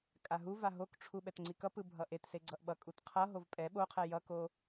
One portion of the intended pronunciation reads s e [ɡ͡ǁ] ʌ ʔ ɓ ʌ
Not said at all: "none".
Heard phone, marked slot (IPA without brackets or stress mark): ɡ͡ǀ